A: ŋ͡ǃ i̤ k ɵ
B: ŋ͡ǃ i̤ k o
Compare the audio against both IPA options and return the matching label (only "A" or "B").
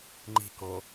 B